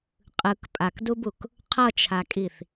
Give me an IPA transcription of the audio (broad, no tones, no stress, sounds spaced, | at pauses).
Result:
qʼ ɯ k pʼ a k d u b u k | qʰ ʌ t͡ʃʰ a kʼ i θ